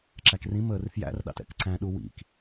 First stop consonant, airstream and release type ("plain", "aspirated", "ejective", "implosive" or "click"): click